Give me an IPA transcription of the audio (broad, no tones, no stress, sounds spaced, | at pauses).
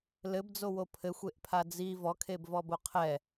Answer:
l ɘ b d͡z o w o pʰ ɘ xʷ e ʔ pʰ a d͡z i v ɔ kʰ e b v ɔ b o qʰ ɛ